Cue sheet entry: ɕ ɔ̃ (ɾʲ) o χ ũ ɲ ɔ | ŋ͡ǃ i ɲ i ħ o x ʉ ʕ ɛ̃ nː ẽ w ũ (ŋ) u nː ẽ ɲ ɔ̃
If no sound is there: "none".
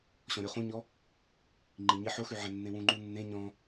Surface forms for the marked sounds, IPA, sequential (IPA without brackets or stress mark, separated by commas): ɾʲ, ŋ͡ǃ